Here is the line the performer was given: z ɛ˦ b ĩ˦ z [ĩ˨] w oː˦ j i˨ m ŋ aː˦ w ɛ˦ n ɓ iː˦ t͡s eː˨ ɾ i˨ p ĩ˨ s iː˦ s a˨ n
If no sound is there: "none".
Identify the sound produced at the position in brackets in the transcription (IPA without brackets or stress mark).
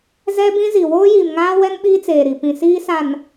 i˨